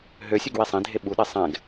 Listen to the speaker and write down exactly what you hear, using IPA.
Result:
ɦ ø sʲ ø ɡ w i sˤ ĩ dʱ e ɓ u ɗ e sˤ ɛ̃ ɡ

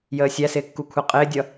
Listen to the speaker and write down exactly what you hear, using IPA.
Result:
j əː sʲ æ s ɪː kː u kʷʰ ɛ qʼ ɪː dʲ ʌ

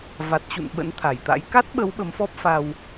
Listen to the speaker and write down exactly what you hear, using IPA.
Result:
v a˨˩ t̚ t͡ɕ ṵ˧˨ n ɓ ə̰˧˥ n t̪ʰ a˨˩ j t̪ a̰˧˥ j k a˦˥ t̚ ɓ ə˨˦ w ɓ ə˨˦ m f ɔ˦˥ p̚ f a˧ w

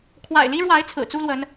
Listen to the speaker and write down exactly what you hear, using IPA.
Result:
kʰ w a̰˨˩ ɪ̯ l i˦ ɻ w a˨˦ ɪ̯ t͡sʰ ɹ̩˨˩ t͡s u˦ l w ə˨˦ n

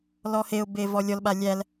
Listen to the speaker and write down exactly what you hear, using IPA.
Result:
l ɔ h e ʊ̯ b e v ɔ lʲ ɔ l ɓ a lʲ æ l

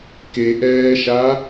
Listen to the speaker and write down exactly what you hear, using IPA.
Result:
k e ʔ ɛː ʃ a

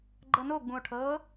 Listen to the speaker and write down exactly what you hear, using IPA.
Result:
ɡ͡ǃ ɤ n o ɡ͡b ũ o̯ ʈʰ ɤː

